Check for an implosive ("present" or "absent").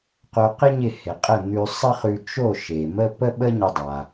present